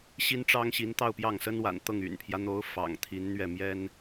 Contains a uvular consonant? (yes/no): no